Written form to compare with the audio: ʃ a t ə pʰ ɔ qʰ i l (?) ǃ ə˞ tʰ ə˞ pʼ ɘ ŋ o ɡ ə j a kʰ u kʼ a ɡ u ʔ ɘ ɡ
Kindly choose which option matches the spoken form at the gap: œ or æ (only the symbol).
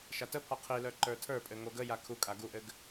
œ